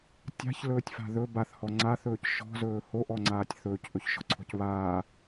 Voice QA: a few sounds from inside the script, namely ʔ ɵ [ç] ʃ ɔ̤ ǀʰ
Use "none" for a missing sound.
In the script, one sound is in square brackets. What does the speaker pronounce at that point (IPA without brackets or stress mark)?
ç